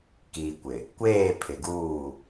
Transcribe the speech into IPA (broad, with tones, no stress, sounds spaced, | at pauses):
k iː˨ kʷ ɪ˨ | kʷ eː˦˨ pʰ ɪ˨ ɡ uː˦˨